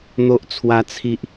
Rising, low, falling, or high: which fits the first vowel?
high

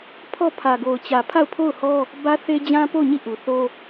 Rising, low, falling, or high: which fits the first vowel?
falling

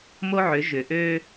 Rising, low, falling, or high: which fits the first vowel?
high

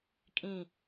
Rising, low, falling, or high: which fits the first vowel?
falling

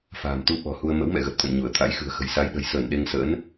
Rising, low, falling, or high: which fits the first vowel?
low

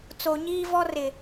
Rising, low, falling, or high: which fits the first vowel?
low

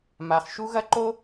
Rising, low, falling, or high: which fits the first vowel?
low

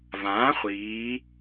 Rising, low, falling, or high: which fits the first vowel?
rising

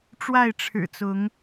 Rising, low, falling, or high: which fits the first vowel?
falling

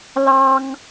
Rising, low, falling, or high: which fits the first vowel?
high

